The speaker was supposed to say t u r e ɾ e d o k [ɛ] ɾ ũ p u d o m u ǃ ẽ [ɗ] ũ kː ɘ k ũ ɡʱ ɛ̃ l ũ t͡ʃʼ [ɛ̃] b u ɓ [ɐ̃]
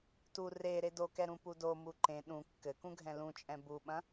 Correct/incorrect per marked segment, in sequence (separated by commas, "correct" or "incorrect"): correct, correct, correct, correct